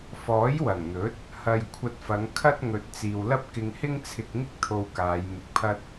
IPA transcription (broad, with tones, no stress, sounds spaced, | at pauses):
f ɔː˨˥ j w ɐ˨˩ ŋ n̪ ɵ˨˥ t̚ | h ɐ˨ j kʷʰ ɐ˧ t̚ f ɐ˨˧ ŋ kʰ ɐ˥ t̚ ŋ ɵ˨ t̚ t͡s iː˨ w l ɐ˥ p̚ k ɪ˧ ŋ h ɪ˥ ŋ t͡sʰ ɪ˧ k̚ ŋ ɪ˥ k̚ t̪ʰ o˧ w k aː˨˧ j m ɪ˧ k̚ pʰ ɐ˥ t̚